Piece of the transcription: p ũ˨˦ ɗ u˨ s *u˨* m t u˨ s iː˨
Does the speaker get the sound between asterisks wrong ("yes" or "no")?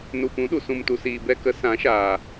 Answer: yes